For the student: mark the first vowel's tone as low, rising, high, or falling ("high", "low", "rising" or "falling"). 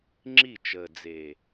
falling